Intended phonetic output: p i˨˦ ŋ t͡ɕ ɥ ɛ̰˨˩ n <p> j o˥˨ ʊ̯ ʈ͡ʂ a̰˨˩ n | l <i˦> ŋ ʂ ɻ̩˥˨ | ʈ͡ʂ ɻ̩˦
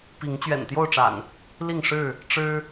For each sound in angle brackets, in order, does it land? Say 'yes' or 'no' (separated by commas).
no, no